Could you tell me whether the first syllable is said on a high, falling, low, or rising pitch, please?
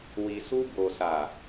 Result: low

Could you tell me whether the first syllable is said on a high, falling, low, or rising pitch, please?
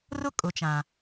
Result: high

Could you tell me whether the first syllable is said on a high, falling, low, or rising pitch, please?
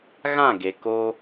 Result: falling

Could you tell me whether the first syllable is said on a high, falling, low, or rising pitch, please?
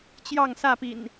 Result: falling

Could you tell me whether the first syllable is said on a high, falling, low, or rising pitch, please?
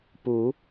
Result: rising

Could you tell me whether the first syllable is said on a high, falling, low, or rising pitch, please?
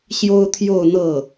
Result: high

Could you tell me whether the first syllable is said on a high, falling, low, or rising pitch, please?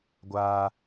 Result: high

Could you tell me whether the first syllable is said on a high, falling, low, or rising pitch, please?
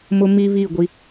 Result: high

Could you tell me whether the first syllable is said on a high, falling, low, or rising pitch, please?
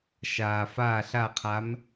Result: low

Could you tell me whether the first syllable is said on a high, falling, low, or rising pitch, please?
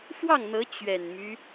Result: falling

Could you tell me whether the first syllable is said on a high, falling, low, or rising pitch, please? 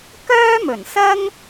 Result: high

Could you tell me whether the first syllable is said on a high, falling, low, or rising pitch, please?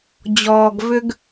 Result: low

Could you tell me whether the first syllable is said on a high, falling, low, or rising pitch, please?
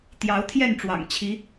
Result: rising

